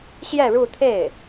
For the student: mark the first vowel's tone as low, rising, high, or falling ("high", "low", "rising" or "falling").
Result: falling